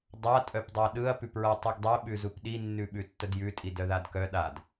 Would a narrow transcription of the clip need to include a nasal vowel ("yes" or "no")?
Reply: no